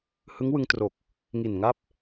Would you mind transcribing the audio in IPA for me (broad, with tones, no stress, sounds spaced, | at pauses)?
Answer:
h ɯ˦˥ ŋ w ɯ˧ ŋ t r o˨˩ k̚ | ŋ i˨˩ n ŋ a˥˩ p̚